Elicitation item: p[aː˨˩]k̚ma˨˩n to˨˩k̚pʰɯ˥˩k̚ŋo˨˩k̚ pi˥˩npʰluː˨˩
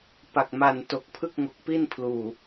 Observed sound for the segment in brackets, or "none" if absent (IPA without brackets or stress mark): a˨˩